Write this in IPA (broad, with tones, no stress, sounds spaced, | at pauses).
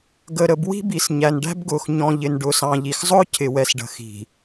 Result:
ɡ ə˨ ɾ ə˨ b w i̤˦ b i˨ s ɲ æ˨ n ɖ æ̤˦ b ɡ ʊː˨ x ɲ ɔ̃˨ ʎ ɪ˨ n ɖ ʊː˨ s ɑ̃˨ ʎ i˨ x zˤ ʊː˦ cʰ ɪ˨ w ɛ˨ s ɖ ə̤˨ x i̤˨